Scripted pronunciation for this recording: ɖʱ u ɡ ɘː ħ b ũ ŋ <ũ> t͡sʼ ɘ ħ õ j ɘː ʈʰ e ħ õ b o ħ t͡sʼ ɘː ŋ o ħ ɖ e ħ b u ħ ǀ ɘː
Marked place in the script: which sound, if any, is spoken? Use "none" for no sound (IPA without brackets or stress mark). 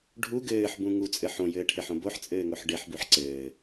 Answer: u